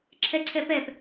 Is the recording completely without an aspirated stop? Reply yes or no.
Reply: no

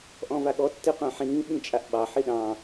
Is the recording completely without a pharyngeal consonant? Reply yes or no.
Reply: no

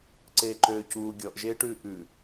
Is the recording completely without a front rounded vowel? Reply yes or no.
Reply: no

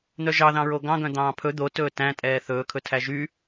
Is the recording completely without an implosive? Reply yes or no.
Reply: yes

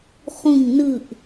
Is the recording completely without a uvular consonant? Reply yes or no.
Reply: no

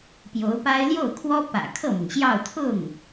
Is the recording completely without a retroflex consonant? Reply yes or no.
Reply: yes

